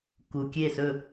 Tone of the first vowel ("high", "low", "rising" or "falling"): low